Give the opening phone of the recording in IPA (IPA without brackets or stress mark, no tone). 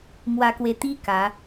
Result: m